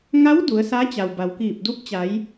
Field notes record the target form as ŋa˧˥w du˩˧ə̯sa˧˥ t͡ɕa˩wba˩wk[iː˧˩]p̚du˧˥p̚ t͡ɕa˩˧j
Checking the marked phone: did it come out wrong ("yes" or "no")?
no